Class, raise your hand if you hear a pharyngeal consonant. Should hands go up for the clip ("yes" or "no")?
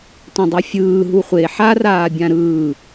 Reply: yes